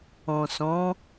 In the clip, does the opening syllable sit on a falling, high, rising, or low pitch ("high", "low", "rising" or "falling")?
low